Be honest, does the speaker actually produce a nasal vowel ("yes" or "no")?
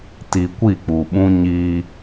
yes